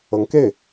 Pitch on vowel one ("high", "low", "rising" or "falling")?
rising